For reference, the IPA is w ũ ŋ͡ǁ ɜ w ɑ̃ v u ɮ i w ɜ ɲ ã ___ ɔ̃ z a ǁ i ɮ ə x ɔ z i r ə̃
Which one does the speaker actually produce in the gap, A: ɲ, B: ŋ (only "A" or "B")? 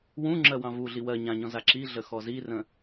A